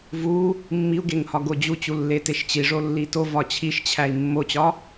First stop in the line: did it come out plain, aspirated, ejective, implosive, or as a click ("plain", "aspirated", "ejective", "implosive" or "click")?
plain